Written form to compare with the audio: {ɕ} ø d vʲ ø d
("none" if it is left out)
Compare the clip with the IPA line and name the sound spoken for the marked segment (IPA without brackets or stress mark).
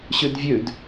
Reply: ɕ